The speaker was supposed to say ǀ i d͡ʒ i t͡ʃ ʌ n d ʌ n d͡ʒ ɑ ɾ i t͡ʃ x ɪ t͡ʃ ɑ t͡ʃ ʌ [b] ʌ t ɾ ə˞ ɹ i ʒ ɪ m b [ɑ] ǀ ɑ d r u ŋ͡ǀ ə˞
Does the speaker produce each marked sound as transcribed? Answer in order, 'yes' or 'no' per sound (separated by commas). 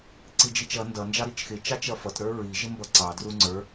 no, no